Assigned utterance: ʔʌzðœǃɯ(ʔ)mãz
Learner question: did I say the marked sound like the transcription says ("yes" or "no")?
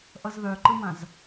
no